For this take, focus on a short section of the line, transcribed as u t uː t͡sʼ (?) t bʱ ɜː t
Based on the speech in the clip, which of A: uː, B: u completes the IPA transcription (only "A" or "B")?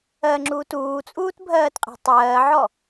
A